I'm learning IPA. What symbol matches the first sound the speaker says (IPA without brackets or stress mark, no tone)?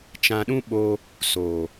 t͡ʃ